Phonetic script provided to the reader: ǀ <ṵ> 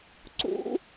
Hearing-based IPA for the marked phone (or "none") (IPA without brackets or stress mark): ṵ